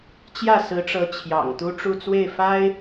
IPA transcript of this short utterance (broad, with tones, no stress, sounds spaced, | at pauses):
t͡ɕ j ä˥˩ s ɹ̩˧˥ ʈ͡ʂ ɤ˧˥ t͡ɕʰ j ɑ̰˨˩ ŋ t̪ u˥ ʈ͡ʂ u˥˧ t͡s w e˥˩ ɪ̯ f a˥ ɪ̯